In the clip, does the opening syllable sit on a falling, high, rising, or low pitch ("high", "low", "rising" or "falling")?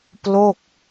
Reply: falling